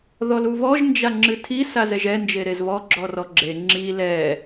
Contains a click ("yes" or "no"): yes